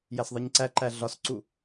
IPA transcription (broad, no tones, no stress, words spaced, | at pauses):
jæsðˤiɲǀæǃæ ɮɒsǀu